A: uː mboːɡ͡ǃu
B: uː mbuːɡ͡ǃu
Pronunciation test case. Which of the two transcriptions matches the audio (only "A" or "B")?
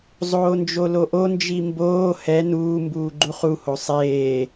B